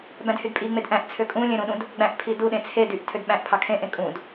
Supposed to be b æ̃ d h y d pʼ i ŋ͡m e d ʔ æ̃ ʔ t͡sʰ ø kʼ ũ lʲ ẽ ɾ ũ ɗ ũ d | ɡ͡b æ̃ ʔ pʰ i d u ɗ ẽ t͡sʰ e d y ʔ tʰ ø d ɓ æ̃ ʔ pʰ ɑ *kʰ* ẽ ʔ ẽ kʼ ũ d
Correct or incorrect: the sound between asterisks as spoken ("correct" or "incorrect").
correct